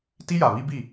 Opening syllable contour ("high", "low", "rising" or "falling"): high